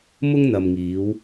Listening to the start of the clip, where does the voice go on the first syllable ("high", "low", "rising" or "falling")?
high